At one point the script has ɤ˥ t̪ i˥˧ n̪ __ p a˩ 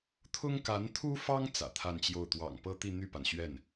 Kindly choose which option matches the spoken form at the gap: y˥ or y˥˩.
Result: y˥˩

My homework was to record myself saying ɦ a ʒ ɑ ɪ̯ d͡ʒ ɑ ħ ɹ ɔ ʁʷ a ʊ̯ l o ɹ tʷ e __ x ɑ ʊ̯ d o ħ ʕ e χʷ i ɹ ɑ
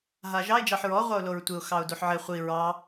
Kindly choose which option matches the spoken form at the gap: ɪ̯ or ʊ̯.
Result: ʊ̯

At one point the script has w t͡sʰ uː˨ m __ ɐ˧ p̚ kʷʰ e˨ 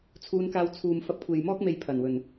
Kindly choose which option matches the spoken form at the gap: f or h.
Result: f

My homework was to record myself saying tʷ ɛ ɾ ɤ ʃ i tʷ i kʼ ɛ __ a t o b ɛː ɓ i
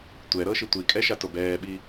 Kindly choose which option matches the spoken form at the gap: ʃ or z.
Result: ʃ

